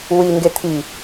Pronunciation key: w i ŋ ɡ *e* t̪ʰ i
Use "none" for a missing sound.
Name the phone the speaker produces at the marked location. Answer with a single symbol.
e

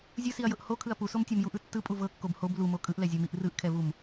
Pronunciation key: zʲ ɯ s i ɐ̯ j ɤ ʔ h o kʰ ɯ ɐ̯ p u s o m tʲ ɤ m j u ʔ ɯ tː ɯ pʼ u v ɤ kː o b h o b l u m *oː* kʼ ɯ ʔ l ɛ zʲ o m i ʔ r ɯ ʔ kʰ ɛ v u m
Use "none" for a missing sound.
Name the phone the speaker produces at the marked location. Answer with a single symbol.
o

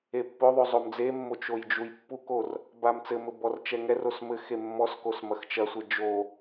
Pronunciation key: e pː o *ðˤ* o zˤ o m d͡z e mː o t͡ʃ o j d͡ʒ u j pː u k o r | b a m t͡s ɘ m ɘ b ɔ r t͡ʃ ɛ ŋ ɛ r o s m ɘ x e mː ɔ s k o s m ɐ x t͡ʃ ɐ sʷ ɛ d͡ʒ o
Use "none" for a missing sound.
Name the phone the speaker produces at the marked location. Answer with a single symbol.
ðˤ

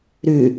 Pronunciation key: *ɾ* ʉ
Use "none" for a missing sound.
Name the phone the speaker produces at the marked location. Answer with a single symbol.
ɾ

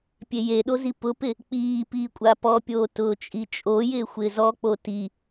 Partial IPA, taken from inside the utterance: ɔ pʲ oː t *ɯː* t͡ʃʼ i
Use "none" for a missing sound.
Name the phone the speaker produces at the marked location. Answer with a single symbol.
ʊː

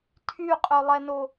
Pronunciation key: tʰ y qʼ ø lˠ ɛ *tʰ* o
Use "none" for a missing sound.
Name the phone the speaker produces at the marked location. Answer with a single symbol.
n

